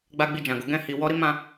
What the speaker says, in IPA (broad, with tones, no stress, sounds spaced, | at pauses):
ɡ͡b a˦ ɡ͡b i˦˨ d͡ʒ ã˨ ɡ o˨˦ ɡ ɛ̃˦˨ h i˨ w ɔ˧ ɾ i˦ m ã˦˨